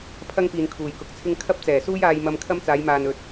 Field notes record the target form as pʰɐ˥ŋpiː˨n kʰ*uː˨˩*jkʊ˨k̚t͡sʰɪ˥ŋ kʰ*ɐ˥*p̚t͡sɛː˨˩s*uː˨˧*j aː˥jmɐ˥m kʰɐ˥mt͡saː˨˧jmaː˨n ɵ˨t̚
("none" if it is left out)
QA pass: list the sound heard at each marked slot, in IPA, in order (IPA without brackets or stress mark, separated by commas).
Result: uː˨˩, ɐ˥, uː˥